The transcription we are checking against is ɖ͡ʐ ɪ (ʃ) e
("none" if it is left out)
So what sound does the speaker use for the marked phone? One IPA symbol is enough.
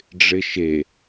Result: ʃ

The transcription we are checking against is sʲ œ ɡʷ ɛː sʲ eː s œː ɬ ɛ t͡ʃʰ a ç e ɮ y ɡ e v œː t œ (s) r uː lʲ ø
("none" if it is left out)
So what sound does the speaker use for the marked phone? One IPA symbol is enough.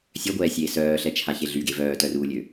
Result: none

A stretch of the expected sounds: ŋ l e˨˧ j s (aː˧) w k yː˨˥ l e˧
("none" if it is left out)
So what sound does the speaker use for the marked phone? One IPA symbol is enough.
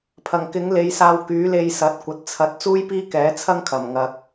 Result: aː˧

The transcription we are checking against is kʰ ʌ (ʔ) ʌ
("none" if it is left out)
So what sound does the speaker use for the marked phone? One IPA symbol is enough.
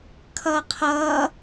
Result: qʰ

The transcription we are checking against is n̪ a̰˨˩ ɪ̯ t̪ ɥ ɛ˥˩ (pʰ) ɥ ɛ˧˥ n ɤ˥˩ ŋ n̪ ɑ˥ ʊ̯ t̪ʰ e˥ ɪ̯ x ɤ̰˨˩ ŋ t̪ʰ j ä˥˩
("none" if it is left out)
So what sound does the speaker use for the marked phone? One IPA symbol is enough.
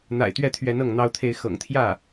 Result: t̪ʰ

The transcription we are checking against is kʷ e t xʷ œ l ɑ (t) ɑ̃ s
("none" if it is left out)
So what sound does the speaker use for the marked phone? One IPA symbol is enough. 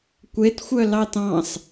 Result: t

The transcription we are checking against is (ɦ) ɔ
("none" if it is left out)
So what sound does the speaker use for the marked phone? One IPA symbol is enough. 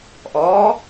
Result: ʔ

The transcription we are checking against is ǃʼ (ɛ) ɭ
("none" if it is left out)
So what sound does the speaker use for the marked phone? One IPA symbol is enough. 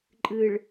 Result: ɨ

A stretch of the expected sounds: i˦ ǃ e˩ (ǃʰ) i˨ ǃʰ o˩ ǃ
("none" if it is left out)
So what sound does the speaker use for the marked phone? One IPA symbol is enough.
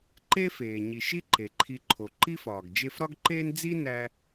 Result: ǃʰ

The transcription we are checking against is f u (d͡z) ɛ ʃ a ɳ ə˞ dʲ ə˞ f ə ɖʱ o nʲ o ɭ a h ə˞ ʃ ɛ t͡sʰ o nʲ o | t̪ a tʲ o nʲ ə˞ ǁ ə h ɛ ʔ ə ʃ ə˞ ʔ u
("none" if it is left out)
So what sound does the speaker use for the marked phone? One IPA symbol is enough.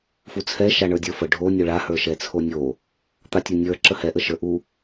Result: t͡sʰ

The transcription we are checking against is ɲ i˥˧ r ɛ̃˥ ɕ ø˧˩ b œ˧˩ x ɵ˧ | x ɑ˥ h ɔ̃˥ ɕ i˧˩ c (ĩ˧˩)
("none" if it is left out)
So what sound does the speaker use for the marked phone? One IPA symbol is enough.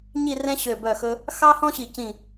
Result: ĩ˧˩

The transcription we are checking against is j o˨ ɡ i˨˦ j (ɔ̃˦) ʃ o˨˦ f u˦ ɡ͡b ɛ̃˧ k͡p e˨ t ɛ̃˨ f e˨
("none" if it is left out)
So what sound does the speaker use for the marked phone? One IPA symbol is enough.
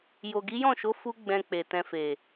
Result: ɔ̃˦˨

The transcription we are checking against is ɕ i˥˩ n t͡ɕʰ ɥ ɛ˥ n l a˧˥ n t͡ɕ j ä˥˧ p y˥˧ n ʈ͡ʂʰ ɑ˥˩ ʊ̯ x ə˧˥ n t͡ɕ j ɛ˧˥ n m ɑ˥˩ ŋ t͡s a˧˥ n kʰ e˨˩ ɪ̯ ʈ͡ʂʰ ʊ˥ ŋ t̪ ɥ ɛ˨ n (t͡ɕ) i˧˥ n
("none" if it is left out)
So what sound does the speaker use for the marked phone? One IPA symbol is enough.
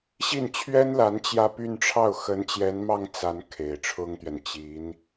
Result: t͡ɕ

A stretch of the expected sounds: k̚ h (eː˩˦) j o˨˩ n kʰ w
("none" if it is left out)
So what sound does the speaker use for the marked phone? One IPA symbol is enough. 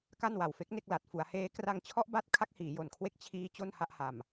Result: iː˩˦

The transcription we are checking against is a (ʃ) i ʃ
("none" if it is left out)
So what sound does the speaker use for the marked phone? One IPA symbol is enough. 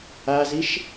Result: z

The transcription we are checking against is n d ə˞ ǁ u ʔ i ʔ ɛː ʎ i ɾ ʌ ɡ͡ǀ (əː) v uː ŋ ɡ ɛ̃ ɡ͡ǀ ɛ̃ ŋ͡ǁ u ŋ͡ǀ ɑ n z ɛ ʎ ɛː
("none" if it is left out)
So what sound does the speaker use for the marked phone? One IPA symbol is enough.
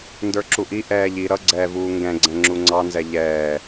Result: ɛː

